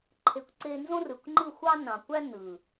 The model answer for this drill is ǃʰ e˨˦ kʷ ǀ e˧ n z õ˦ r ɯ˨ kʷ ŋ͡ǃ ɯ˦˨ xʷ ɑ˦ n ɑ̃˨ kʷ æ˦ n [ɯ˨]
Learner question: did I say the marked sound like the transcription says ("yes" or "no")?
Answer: yes